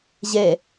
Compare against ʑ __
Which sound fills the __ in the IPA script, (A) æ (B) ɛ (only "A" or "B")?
B